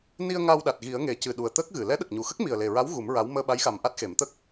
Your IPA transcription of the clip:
ni˧ə̯ ŋa˧wɗa˨˩t̚ɣi˨˩˦ə̯ŋe˨˩ cɨ˨˩ ɗu˨˩ə̯ t̪əː˦˥k̚ɣɨ˨˩˨ lɛ˧˥ɗə˨˩k̚ɲu˨˩xə˦˥k̚ mi˨˩ə̯le˨˩ɹa˧˥w ɣu˨˩˦mɹa˧˥w məː˧ɓa˧˥jxa˨˩m ʔa˦˥t̚xe˨˩˦mt̪ə˦˥k̚

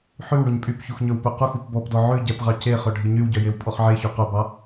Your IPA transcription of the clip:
ħʉw ɳuɲpʼypçux ɲɵwpøquxup bɔpdɔ ʕʉ ɟɛpʁɑ ceχœ ɖʱiɲywɟœ jewpʼɔχʕeço qœbɑ

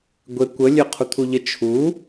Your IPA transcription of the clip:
ɡʷe kʷə lʲøqʰut̪ʰuʎə t͡ʃʰu

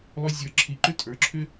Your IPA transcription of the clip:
lˠʏ˨ zʲə˞˨ǁʰi˨ǃʏ˦ tʼə˞˨˦ǁʰʏ˦

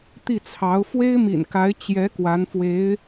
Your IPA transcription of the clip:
t̪i˥˩t͡sʰɑ˧˥ʊ̯ fwe˥ɪ̯mḭ˨˩nka˧˥ɪ̯ t͡ɕjɛ˧˥ kwa˧˥nfwe˧˥ɪ̯

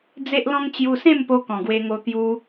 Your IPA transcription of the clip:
d͡ze˦ʔlɔ̃˦ŋ t͡ɕju˧sẽ˥˧mpo˧ kɔ̃˨˩ɡwe˧ŋo˧ t̪ju˧

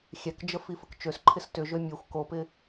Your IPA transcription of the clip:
xʲɛkd͡ʒə fifəkt͡ʃøsǃʰɪs tʏʒø mʲøxʷ kopɪ

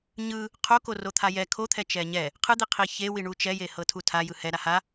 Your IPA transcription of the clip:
ɲɯ | qʰokorot̪ʰa jɛ kʰot̪ʰɛ t͡ʃɛɲɛ | qʰɯd̪iqʰi çewiɳu t͡ʃɛje hɤtʰutʰa jɯhɛ ɾaha

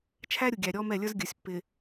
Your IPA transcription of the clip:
t͡ʃʰæ˦ɾʲu˨ɡʲæ˨ ɾʲɔ˦mɛ˦˨lʲə˞˦z ɡʲə˞˨sʲpːɪ˨

